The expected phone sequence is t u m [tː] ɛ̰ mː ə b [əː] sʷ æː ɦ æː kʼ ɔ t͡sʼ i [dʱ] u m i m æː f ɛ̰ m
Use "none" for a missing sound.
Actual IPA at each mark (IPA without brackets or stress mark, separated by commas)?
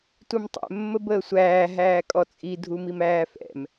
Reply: tˤ, əː, dʱ